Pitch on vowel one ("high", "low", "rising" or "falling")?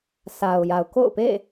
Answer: low